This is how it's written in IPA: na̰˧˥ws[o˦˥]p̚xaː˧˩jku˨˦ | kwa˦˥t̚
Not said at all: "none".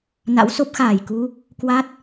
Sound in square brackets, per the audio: o˦˥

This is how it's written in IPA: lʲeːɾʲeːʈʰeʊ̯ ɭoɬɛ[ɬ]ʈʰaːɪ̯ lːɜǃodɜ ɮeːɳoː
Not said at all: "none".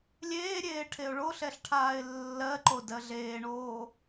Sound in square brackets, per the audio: ɬ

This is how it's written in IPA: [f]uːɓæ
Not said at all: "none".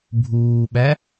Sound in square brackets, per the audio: bʱ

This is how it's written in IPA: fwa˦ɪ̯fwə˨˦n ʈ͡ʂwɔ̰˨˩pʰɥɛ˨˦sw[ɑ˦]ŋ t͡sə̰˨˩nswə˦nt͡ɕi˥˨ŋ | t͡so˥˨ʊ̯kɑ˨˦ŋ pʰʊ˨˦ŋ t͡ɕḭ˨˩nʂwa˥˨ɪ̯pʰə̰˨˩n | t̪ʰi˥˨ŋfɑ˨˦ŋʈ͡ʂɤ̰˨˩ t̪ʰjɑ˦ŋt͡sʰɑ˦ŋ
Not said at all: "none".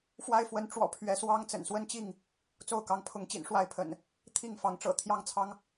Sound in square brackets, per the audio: ɑ˦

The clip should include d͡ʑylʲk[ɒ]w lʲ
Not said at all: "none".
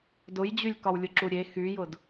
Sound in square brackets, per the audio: ɒ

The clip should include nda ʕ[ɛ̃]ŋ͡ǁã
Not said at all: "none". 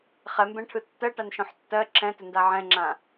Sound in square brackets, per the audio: ɛ̃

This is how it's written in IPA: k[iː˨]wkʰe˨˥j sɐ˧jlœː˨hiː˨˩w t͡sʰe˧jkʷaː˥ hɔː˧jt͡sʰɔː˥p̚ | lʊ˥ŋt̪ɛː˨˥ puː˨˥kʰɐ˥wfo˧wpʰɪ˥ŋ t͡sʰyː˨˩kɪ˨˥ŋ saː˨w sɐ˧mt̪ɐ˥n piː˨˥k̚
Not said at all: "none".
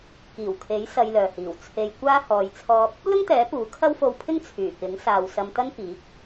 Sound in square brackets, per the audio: iː˨˩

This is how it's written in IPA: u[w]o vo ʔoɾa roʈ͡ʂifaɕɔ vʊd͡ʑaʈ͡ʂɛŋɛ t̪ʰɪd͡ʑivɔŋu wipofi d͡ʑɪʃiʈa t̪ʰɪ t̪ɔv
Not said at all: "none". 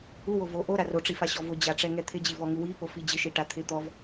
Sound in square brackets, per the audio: w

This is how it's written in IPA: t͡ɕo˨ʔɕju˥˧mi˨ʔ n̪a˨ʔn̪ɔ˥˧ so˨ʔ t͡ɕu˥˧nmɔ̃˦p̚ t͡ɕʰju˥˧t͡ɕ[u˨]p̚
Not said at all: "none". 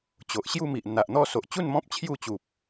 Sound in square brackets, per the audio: u˨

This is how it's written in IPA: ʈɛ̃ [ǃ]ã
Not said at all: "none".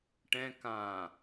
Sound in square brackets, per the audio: k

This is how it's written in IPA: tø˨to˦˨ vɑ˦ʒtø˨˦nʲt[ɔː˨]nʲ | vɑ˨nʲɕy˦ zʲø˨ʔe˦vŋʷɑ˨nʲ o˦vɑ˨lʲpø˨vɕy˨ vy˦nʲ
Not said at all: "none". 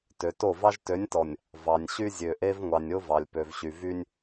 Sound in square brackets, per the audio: ɔ˨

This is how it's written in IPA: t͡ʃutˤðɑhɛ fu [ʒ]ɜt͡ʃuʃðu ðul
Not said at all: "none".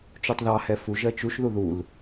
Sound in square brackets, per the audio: ʒ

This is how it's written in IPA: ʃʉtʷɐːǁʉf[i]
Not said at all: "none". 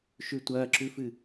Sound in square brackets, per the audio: ɨ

